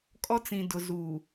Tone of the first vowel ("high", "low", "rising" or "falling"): high